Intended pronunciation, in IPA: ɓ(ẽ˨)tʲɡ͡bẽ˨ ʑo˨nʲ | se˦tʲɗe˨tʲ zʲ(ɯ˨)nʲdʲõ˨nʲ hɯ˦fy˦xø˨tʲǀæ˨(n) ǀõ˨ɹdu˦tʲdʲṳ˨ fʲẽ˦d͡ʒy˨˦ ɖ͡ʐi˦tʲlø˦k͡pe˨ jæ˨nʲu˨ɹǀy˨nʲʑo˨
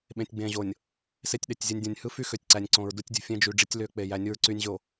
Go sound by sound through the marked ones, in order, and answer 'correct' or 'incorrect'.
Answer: correct, correct, incorrect: nʲ

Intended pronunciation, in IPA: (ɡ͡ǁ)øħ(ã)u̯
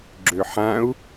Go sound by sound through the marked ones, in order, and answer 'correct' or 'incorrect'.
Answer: correct, correct

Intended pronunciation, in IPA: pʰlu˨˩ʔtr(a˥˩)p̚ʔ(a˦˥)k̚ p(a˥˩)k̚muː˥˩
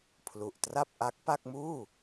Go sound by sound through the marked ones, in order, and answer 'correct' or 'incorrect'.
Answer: correct, correct, correct

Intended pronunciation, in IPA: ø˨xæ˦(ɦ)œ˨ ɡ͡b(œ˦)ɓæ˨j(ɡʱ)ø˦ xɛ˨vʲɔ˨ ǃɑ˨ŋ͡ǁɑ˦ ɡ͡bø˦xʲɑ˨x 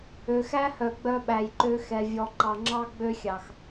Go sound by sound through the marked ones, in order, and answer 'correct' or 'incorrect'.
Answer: incorrect: h, correct, incorrect: ǃ

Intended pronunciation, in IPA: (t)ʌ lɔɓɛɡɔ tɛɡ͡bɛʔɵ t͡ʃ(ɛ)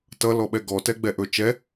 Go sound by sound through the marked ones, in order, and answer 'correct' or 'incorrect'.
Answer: correct, correct

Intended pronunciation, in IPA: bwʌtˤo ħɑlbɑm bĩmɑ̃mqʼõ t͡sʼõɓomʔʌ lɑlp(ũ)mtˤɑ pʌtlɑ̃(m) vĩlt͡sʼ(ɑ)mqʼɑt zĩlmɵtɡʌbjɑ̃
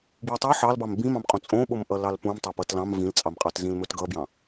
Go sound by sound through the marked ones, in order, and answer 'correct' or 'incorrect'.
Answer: correct, correct, correct

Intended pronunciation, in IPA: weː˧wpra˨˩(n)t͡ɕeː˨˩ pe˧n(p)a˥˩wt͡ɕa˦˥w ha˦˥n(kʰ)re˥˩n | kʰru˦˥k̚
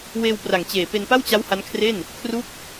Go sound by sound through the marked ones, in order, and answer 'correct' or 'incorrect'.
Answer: incorrect: ŋ, correct, correct

